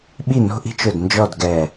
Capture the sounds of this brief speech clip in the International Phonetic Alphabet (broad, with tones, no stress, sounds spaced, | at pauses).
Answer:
ɓ i˥˨ n o̤˥ ʔ i̤˥ t͡ʃ ʊ˧˩ d n d͡ʒ ɔ˥˨ d ɡ ɛ˧˩